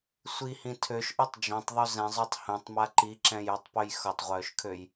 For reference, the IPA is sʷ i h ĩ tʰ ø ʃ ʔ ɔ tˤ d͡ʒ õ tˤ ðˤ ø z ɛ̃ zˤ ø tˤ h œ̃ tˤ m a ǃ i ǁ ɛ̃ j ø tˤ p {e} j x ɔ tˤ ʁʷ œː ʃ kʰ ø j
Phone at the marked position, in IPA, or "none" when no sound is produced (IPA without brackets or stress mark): ø